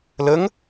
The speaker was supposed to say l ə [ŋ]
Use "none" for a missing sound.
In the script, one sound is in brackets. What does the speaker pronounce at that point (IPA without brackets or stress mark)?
ŋ